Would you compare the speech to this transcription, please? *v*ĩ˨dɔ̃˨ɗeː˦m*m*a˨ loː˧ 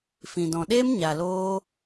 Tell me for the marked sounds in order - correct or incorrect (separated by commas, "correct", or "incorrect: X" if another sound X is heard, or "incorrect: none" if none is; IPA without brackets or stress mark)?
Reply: incorrect: f, incorrect: ɲ